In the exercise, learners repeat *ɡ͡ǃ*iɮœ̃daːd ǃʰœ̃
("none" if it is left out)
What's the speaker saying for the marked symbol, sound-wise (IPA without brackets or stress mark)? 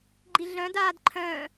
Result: ɡ͡ǃ